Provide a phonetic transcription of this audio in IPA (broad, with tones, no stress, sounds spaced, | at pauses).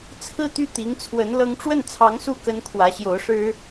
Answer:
t͡sʰ ɹ̩˥˧ t̪ y˥˩ t̪ i˧˥ ŋ t͡sʰ w ə˧˥ n l ɤ˧˥ ŋ ʈ͡ʂ w ə˥˩ n t͡sʰ ɑ˧˥ ŋ s u˥˩ k ə˥ n kʰ w ä˧˥ ɕ j o˧˥ ʊ̯ ʂ ɻ̩˥